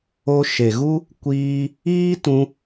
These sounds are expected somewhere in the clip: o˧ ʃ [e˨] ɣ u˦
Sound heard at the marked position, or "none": e˨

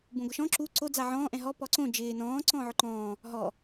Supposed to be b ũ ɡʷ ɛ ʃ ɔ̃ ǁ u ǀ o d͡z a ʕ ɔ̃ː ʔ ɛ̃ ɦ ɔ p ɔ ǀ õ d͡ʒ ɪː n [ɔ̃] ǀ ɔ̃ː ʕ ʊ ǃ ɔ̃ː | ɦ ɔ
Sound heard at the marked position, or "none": ɔ̃ː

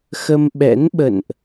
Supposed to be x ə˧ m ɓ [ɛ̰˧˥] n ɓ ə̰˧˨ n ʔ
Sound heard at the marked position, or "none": ɛ̰˧˥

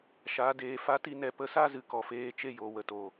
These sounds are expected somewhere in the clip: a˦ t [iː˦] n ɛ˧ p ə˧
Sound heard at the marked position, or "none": i˦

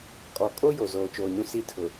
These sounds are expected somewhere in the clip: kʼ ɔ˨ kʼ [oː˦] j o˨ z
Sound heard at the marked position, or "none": o˦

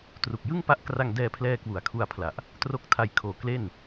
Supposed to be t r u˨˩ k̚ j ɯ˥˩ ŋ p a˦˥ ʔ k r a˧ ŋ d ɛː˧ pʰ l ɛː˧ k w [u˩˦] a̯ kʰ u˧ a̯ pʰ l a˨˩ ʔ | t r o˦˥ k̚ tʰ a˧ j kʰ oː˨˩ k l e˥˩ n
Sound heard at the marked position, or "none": u˩˦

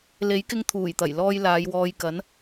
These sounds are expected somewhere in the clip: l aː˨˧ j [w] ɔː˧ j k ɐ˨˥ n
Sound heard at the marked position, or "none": w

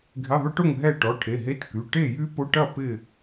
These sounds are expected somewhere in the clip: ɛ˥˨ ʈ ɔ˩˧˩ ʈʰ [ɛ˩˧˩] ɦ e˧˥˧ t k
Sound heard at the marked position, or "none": e˩˧˩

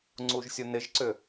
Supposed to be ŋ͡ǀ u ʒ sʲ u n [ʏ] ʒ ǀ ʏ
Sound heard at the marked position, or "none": ɪ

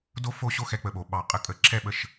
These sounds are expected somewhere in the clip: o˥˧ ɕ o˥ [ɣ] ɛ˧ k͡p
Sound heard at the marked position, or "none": x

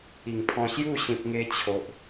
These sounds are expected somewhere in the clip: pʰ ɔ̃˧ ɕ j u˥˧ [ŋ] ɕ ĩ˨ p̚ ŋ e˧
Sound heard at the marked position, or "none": none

